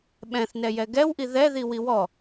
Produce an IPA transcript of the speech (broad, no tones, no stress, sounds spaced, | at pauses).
ɓ ɛ̃ θ n ɛ j ɛ ɡ ɛ w ʔ i ð ɛ ð i w i w ɔ